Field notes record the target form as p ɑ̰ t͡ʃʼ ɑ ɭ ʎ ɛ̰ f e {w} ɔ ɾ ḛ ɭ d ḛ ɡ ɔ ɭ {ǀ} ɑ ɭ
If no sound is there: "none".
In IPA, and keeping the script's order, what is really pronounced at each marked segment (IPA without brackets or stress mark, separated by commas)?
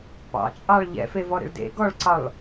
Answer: v, ǀ